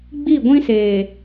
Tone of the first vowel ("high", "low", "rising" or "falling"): falling